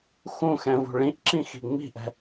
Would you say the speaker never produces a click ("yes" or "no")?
no